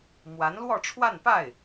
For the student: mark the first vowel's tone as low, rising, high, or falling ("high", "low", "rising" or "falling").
rising